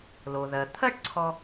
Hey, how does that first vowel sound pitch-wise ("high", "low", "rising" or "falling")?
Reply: low